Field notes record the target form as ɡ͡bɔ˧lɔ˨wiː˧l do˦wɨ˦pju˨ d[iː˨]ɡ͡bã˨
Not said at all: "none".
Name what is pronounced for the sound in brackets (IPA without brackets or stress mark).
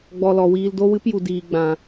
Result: iː˨